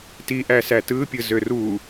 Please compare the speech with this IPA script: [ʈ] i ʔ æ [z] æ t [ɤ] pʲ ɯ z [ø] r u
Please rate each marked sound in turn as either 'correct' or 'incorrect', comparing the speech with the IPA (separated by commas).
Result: incorrect, incorrect, incorrect, correct